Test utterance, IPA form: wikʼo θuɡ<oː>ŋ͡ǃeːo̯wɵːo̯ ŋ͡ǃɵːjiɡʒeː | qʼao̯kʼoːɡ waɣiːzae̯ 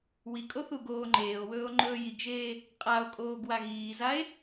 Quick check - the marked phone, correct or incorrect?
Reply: correct